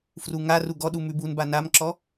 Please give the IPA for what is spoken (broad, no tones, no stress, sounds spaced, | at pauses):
f r u ŋ a r u ɡ ɔ ɗ u m ʉ b u n b a n a m ǁ ɔ